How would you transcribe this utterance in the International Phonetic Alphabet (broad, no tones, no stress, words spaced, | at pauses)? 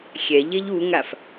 xʲɛʎeʎ uŋaf